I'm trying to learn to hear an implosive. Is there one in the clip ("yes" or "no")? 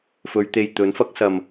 no